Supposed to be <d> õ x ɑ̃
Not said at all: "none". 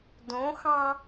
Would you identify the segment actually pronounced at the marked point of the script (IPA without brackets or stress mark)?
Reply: d